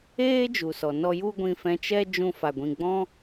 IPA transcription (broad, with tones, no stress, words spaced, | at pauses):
eː˦d͡ʒu˨sɔ˨ nɔ˦ ju˦ ɡʷĩ˧fɛ̃˧t͡ʃɛ˦ d͡ʒũ˦ fa˧ ɡʷĩ˧ ɡ͡bɔ̃˦